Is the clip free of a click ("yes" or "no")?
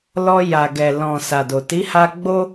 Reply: yes